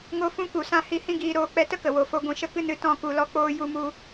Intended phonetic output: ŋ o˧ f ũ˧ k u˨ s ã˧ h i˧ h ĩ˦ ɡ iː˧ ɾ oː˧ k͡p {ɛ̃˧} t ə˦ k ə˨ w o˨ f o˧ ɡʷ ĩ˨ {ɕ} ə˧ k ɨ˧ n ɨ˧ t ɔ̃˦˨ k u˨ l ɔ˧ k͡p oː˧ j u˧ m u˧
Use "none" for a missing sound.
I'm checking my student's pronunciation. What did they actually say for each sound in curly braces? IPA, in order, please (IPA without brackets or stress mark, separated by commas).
ɛ˧, ʃ